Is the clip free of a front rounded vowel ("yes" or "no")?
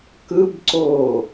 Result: yes